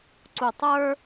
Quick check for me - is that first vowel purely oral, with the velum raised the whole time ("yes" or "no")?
yes